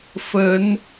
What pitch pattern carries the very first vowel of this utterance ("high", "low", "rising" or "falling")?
rising